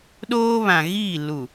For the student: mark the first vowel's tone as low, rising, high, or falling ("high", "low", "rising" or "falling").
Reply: high